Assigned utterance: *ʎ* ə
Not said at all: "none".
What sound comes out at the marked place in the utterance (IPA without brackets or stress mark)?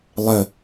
lˠ